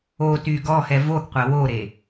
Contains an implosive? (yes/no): no